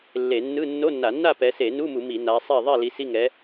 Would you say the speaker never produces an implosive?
yes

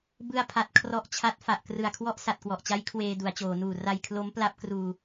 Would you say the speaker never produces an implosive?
yes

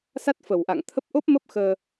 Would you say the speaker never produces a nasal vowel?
yes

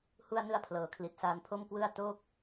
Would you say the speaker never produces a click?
yes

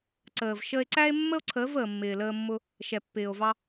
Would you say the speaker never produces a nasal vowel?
yes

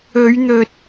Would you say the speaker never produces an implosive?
yes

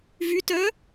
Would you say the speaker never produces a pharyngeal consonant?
yes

